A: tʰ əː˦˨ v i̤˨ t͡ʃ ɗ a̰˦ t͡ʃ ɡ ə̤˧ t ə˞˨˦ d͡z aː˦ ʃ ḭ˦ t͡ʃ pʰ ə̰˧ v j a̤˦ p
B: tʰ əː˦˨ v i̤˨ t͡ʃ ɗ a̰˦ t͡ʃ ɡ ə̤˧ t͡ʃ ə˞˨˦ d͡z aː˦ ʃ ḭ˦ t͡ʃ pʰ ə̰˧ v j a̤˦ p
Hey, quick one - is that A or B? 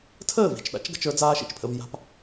B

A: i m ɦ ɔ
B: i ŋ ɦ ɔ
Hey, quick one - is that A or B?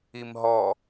A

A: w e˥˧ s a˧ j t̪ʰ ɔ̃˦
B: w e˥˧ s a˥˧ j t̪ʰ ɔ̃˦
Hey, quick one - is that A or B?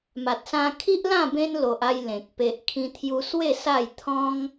B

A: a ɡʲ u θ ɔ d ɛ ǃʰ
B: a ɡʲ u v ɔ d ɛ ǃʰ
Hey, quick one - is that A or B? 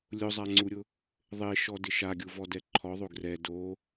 B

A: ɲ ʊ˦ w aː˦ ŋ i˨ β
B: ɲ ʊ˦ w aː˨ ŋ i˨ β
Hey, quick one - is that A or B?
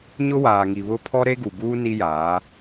B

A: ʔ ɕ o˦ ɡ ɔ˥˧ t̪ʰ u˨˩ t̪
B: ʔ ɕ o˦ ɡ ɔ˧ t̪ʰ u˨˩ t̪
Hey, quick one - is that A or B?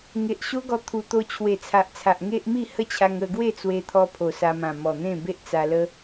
B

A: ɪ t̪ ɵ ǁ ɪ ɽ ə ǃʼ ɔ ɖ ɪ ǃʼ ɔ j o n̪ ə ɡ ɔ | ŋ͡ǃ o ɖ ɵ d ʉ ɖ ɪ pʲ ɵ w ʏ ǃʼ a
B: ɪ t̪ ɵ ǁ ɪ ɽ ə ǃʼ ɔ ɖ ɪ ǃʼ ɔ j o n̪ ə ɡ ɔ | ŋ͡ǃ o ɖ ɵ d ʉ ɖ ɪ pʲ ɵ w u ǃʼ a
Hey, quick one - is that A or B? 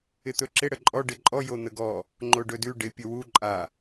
B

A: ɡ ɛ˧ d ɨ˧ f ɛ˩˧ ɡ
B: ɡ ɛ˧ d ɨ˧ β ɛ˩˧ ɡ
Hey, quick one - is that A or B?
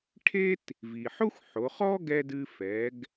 A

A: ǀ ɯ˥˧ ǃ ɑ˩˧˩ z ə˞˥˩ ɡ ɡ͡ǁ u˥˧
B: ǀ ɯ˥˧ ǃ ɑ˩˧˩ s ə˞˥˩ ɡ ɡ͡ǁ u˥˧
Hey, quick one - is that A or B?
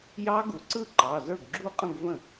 A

